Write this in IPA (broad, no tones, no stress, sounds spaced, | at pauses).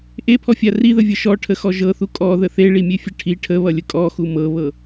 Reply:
ʔ e pʰ ɔ fʲ a r i ð ə vʲ ʌ ʃ ɔ ʈʰ ə x ɔ ʒ ɤ θ u kʼ ɔ ð ə θ e ɭ i mʲ e fʲ ə ʈʰ i ʈʰ ə β ʌ lʲ ə kʼ ɔ x u m ɤ β ɤ